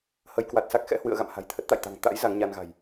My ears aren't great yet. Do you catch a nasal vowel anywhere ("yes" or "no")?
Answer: no